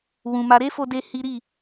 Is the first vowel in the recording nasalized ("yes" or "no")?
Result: yes